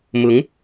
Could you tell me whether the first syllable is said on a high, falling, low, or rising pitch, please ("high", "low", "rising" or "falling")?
rising